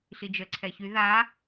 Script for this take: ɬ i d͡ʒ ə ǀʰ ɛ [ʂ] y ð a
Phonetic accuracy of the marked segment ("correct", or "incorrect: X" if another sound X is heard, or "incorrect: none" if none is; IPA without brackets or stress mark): incorrect: ç